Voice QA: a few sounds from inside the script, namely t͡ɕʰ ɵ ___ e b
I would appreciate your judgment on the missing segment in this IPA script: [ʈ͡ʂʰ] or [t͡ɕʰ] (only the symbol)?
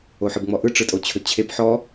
t͡ɕʰ